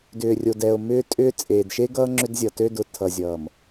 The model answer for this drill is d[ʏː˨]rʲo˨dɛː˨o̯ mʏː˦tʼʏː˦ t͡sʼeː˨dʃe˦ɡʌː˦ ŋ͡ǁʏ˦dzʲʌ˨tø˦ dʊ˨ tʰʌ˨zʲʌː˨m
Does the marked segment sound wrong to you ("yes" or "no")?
no